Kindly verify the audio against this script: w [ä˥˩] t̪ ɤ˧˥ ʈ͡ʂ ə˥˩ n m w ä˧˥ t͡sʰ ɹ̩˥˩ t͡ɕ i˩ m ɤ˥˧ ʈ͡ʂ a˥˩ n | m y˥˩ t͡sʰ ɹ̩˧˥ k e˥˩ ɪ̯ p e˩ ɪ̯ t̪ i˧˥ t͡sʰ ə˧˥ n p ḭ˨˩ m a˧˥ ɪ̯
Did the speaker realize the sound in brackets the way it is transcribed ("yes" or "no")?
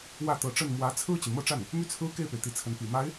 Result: yes